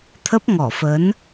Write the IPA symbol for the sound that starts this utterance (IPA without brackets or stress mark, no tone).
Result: t̪ʰ